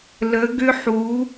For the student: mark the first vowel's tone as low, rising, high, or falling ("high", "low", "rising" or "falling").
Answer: rising